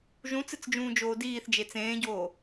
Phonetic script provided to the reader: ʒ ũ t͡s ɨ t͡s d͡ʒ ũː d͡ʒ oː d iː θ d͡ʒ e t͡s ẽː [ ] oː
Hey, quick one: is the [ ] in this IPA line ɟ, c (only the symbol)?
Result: ɟ